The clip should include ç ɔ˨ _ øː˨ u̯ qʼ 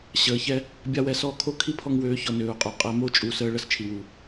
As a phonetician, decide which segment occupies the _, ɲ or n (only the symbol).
n